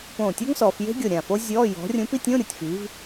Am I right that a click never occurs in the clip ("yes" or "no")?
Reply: yes